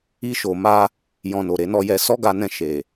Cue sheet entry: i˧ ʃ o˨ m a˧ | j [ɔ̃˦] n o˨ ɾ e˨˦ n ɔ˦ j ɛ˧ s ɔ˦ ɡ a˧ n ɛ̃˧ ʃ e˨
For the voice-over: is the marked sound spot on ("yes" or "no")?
no